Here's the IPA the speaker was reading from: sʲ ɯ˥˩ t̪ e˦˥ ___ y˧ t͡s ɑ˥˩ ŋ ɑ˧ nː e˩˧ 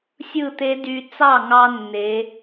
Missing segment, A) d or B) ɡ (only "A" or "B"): A